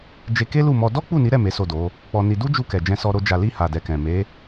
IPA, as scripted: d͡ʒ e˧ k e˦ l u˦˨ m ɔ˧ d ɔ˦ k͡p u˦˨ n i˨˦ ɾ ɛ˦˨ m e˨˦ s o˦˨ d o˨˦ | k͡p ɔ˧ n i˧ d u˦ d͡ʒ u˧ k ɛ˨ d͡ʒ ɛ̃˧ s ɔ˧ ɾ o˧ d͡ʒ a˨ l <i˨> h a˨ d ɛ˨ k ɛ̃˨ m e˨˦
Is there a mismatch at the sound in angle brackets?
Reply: yes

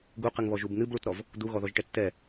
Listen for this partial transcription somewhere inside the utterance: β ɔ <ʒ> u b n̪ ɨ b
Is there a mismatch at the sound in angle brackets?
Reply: no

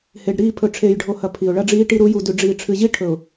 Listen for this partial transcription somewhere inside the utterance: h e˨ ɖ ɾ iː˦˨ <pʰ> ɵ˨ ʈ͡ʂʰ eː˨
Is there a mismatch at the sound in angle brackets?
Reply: no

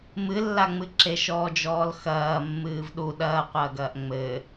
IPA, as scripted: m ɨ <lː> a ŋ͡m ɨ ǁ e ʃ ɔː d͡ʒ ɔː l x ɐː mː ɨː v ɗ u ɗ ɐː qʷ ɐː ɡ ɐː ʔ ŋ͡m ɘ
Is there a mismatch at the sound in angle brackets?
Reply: no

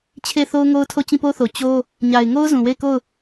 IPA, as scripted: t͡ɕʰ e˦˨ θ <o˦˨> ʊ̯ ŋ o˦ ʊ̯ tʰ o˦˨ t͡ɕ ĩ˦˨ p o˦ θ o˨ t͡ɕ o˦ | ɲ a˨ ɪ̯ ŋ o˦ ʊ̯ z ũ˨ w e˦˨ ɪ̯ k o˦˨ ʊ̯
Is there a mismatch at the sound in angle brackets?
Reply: yes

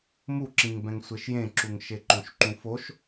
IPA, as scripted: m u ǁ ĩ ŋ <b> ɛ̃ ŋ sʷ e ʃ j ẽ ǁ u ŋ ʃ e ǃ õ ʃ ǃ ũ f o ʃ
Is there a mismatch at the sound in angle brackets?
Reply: no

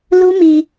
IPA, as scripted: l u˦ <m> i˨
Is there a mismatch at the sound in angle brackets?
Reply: no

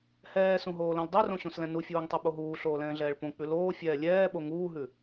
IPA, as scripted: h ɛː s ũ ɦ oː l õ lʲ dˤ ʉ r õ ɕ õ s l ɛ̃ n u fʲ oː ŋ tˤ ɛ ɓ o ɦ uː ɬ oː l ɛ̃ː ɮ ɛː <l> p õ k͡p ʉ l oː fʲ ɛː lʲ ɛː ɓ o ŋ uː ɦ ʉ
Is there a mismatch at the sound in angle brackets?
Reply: yes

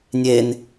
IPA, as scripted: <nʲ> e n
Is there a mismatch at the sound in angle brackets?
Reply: no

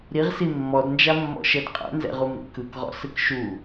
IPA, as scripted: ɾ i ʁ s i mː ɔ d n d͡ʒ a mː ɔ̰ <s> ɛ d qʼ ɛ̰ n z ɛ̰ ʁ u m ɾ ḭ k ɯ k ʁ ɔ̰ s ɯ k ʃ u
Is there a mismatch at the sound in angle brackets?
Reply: yes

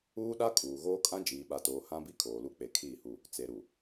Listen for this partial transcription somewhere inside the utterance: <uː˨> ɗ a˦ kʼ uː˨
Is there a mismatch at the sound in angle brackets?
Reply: yes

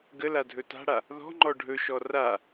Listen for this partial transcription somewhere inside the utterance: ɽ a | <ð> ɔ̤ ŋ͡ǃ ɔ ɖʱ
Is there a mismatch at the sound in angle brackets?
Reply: no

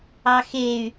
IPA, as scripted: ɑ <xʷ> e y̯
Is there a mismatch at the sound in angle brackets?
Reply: yes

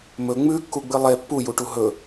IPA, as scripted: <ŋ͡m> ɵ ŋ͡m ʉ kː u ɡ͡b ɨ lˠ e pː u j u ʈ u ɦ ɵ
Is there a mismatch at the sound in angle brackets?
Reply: yes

